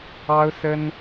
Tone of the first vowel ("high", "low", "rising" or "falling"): high